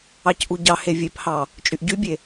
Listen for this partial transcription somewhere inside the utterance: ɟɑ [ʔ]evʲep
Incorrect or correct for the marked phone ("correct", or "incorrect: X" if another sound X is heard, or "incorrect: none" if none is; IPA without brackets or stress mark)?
incorrect: h